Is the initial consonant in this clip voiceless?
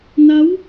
no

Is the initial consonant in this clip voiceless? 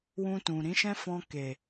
no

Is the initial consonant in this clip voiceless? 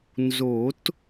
no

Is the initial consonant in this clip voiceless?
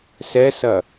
yes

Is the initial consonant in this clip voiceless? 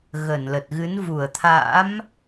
no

